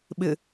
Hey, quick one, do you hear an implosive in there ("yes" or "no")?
yes